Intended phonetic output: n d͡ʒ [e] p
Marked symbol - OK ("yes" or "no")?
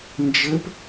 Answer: no